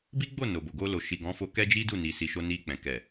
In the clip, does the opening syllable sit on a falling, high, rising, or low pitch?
high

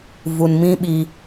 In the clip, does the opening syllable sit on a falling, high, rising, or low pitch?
low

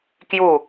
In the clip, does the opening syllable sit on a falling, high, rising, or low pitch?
falling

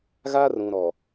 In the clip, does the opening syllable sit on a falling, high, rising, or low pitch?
high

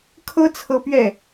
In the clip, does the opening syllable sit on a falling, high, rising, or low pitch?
high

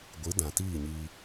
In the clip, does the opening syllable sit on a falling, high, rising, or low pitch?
rising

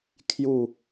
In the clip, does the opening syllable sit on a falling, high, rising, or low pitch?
falling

